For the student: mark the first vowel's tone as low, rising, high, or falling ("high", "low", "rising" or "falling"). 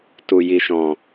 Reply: low